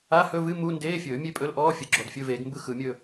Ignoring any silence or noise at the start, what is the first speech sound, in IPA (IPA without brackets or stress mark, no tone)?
a